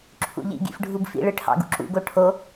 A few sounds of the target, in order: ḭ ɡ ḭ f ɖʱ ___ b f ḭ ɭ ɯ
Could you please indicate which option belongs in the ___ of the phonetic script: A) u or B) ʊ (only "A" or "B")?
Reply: A